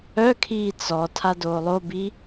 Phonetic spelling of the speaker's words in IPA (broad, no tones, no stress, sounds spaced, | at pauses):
œ kʰ iː t͡s ɔ tʰ a d oː lˠ o b i